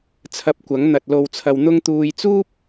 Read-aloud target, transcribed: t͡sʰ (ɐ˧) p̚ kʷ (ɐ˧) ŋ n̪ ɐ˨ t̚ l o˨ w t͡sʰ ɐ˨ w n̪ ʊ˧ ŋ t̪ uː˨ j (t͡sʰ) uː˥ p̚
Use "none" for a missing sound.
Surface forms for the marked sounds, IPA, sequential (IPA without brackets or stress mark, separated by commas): ɐ˨˥, ɐ˨˥, t͡s